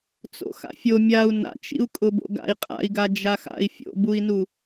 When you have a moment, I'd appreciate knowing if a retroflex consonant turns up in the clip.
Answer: no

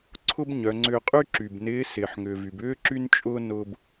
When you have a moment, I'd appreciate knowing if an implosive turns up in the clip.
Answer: no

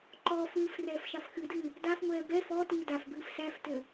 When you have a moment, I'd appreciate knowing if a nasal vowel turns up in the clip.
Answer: no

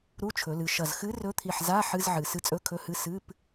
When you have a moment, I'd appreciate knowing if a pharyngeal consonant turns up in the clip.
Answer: yes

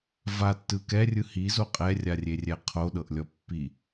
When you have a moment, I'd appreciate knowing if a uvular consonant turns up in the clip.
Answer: yes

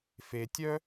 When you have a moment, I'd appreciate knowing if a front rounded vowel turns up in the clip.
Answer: yes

